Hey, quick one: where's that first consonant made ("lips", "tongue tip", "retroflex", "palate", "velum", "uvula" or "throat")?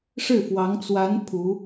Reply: retroflex